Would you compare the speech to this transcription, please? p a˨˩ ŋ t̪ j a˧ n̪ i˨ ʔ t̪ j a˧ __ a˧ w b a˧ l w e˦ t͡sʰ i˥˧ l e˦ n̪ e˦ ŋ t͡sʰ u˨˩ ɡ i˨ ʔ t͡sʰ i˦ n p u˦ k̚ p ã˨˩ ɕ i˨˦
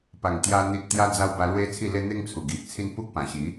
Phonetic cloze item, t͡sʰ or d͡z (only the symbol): d͡z